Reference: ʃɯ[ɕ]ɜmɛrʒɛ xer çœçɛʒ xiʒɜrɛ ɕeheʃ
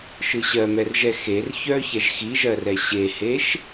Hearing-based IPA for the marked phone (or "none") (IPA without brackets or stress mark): ɕ